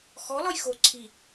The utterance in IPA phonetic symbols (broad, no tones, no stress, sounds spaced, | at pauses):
x ɔ l ɒ j x o ǀʰ i